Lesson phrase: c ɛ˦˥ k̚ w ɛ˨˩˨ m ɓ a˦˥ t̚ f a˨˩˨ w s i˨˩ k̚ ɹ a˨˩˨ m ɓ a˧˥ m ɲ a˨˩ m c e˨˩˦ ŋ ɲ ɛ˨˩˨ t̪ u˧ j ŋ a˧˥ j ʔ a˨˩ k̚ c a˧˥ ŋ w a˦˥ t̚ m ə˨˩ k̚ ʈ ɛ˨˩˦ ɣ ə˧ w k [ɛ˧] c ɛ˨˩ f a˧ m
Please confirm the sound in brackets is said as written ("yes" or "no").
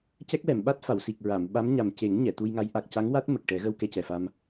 yes